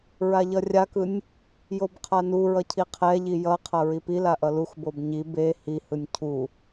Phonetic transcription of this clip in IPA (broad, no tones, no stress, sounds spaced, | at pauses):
ɹ a ʎ ʌ rʲ a k ɯ nʲ | j o b qʰ a n u ɹ ʌ cʰ i qʰ ɛ ʎ i j ʌ qʰ ʌ ɹ i p i l a ʔ ʌ l u x b o b ɲ i b e h i h ɯ nʲ cʰ u